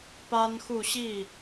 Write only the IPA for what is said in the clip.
p a˥ n x u˥˧ ɕ i˥˩

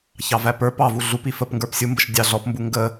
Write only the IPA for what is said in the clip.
ç ɑ v æ p ə˞ p ɑ v u ɮ u p i f ə p ŋ ɡ ə˞ p sʲ u m b ə ʃ dʲ ɑ ɮ ɔ p m b u ŋ ɡ ə

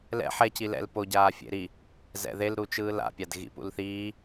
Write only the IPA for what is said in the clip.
l ɛ̰ ħ ɛ c i l ɛ̰ l p o ɟ aː fʲ ḛ ɾ i | z ɛ̰ ð e l ɾ u t͡ʃ ɯː l a̰ pʲ a d ɣ ḭ p ṵ l θ iː

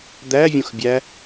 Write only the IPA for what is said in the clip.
d̪ æ vʲ õ x bʲ æ

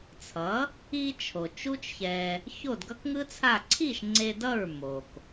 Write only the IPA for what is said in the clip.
t͡sʰ ʌ˩˥ | i˧ t͡ʃʰ o˩ t͡ʃ u˥ t͡ʃ ç ɛ˧ | ç o˥˩ d ɡ ʌ˥ k ŋ ɯ˥ t͡sʰ a˥˩ ǀʰ i˥˩ ʃ ŋ͡ǀ e˧ d ʌ˥˩ ɹ m o˩ k

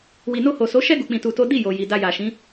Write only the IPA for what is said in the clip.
w i˨ n o˧ h o˨ s o˨˦ ʃ ɛ˦ ɡ u˧ k͡p ĩ˧ t u˧ t o˦ d i˦˨ j o˨ j i˨ d a˧ j a˨ ʃ ĩ˨˦

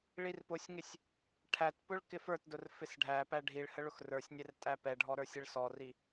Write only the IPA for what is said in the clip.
ɭ i r p ʊ sʲ ŋ ɪ sʲ | ʈʰ æ t p ʊ ɭ k ɪ f ə˞ t d ʊ r f ɪ s ɖʱ æ p æ ɖʱ i ɭ h ə ɭ ʊ x r ə˞ sʲ nʲ ɛ r tʼ æ p ɛ ɖʱ ɔ ɾ ə˞ sʲ ɪ ɭ s ɔ r i

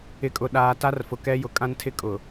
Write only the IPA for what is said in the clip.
ɪ˨ kʼ ʊ˨ ɗ aː˨ t a˦ r f ʊ˨ k ɛ˦ j ʊ˨ kʼ ã˦ n tʰ ɪ˦ kʼ ʊ˨

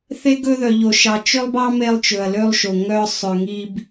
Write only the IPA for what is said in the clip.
θ e˦ ɡ ɵ˦ ð œ˧ ʎ o˧ ʃ ɑ˧ t͡ʃ ø˦ lˠ b ɑ˦ m e˧ lˠ t͡ʃ ɵ˨ ɐ̯ l ø˧ lˠ ʃ o˨ ŋ œ˦ sˤ ø˧ ŋ i˦ b

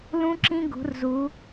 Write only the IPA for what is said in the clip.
l ũ˦ ǁ ĩ˦ ɡ ṳ˨˦ r z u˨˦

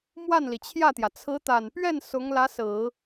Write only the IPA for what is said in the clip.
m w a˥˩ n l i˩ t͡ɕʰ j ä˥˩ t̪ j ä˩ t͡sʰ ɹ̩˧˥ t̪ a˨˩ n p ɥ ɛ˥˩ n s ʊ˧˥ ŋ l ä˧˥ s ɹ̩˨˩˦

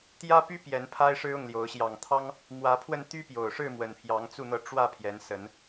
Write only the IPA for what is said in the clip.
t̪ j ä˦ p y˦ p j ɛ˨˦ n pʰ a˦ ɪ̯ ʂ ɻ̩˦ ʊ˥˨ ŋ l j o˨˦ ʊ̯ ɕ j ɑ˨˩ ŋ t̪ʰ ɑ˦ ŋ | m w ä˨˦ pʰ w ə˧ n t̪ y˦ p j o˨˩ ʊ̯ ʂ ɻ̩˥˨ m w ə˨˩ n pʰ j ɑ˨˦ ŋ t͡s u˥˨ n̪ ɤ˥˨ ʈ͡ʂ w ä˥˨ pʰ j ɛ˨˦ n s ə˨˦ n

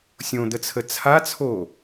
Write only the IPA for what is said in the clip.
sʲ õ d̪ ə t͡sʰ ə t͡sʰ a t͡sʰ o

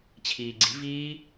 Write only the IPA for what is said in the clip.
t͡ɕʰ iː ɡ͡ǀ i̤ v iː

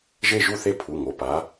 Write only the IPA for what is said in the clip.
ʒ e˦˨ ʒ u˦˨ θ e˦˨ pʰ u˩˧˩ ŋ o˩˧˩ p a˨˦

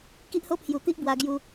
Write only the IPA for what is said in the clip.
k i˦ ʔ h o˦ pʰ j u˨˩ t̪ i˦ ʔ b w a˧ ɡ j u˧

